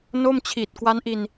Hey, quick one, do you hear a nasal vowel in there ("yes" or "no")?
no